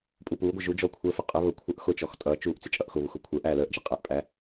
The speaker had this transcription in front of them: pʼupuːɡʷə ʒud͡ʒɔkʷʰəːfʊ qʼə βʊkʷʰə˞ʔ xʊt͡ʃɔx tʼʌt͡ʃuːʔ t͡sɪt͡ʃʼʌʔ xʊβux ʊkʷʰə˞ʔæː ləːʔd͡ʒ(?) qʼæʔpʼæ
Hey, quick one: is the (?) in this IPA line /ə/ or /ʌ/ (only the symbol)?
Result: ʌ